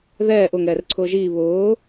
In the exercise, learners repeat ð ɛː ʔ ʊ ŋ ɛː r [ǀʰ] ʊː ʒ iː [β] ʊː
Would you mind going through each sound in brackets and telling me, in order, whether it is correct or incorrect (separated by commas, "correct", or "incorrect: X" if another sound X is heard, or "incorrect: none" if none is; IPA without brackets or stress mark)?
correct, correct